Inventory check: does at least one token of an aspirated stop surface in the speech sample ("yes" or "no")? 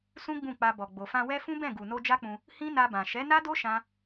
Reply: no